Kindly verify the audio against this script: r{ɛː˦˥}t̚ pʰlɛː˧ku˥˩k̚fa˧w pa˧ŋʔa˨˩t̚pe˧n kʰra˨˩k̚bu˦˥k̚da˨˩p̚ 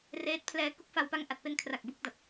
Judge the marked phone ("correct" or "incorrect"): incorrect